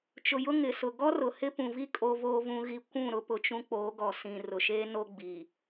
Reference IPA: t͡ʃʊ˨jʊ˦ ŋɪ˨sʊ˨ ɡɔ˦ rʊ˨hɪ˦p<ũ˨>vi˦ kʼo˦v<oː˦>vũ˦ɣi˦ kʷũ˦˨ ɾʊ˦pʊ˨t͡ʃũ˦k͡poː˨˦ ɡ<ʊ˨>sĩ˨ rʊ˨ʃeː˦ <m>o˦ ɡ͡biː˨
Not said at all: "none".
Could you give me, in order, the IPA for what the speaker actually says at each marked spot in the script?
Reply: ũ˨, oː˦, ɔ˨, n

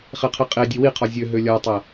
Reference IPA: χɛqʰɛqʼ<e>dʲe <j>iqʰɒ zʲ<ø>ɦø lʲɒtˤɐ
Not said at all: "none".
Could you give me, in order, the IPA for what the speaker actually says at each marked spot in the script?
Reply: e, w, ø

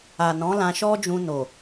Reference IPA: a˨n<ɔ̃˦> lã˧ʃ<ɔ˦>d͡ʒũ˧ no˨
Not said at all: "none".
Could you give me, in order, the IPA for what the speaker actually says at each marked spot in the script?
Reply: ɔ̃˨˦, ɔ˦

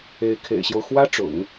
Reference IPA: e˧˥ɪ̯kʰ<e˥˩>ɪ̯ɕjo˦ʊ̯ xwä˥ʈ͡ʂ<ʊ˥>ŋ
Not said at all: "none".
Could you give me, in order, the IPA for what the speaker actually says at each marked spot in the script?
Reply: ḛ˨˩, ʊ̰˨˩˦

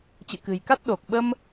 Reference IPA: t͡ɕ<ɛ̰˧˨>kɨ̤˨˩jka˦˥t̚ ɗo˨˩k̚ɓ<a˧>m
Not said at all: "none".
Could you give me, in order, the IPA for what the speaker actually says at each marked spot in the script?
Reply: ɨ̰˧˨, ə˧

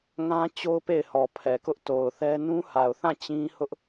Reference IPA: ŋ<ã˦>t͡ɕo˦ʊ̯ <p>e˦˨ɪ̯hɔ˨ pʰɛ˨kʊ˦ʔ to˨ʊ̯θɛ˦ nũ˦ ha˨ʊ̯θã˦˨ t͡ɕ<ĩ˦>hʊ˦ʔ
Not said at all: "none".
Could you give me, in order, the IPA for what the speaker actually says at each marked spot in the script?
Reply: ã˦, p, ĩ˦

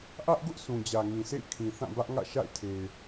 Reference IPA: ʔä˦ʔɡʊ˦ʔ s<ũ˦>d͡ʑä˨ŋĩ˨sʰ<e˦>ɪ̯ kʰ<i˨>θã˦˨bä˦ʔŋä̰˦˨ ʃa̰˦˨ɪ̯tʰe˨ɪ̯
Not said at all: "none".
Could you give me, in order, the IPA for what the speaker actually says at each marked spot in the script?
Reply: ũ˨, ḛ˦˨, ĩ˨

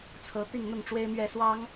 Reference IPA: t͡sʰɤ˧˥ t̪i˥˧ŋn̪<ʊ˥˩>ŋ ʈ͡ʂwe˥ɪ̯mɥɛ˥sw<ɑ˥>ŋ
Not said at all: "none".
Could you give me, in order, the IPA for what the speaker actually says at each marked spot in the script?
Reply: ʊ˥˩, ɑ˥

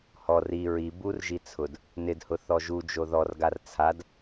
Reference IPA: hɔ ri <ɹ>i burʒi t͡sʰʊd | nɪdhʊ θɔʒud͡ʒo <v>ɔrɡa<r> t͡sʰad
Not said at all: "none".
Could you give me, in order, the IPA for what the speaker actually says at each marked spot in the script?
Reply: ɹ, ð, r

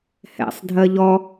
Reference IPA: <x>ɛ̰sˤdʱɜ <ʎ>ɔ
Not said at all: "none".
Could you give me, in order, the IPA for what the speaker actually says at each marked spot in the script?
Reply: h, ʎ

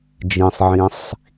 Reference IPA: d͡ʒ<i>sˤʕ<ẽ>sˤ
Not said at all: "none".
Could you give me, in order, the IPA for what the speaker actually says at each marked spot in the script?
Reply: ĩ, ĩ

